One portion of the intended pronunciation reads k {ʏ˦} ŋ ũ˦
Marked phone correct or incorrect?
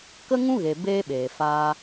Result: incorrect